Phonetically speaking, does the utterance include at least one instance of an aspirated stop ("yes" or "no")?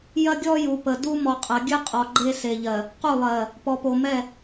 no